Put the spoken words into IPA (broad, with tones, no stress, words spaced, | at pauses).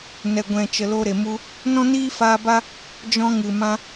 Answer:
nɛ˨ɡʷɛ̃˨ t͡ʃə˨lo˧ɾe˨mu˧ | nɔ̃˦niː˦faː˧ba˦ | d͡ʒɔ̃˧ŋɨ˨ mã˧